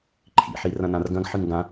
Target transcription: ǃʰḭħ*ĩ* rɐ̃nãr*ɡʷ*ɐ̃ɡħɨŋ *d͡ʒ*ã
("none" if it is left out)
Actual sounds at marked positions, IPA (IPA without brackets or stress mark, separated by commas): i, ɡ, ɡ